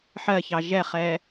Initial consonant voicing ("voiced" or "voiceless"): voiceless